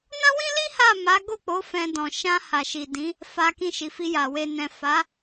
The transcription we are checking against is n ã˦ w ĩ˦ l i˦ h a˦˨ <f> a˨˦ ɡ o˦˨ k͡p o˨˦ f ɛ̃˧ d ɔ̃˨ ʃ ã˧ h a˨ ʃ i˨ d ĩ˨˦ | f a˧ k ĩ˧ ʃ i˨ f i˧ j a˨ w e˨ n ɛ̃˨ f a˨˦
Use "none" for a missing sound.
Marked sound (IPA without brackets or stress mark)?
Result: m